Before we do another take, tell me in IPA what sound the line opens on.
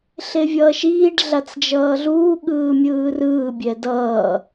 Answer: ɬ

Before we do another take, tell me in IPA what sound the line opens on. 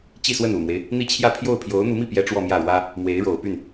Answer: t͡ɕ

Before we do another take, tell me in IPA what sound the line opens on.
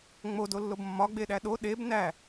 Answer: ŋ͡m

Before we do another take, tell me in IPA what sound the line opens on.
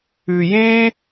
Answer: ʉ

